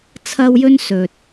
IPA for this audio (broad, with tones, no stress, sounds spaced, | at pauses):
t͡sʰ ɐ˥ w j ɵ˥ n s ɵ˨ t̚